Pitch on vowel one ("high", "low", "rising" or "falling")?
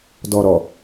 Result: low